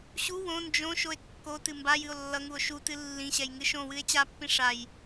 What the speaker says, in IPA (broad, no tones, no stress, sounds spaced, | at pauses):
ɕ u w õ n d͡ʒ õ ʃ o e̯ kː o t ɨ m b a j ɨ o̯ lː ʌ ŋ u o̯ ʃ u t ɨ lː ĩ ɕ ɛ j ŋ ɨ ʃ õ w ɨ e̯ t͡ɕ a pː ĩ ʂ a j